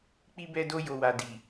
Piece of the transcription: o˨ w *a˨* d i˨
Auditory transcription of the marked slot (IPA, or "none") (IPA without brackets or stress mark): a˨